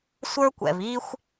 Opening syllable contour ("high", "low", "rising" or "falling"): high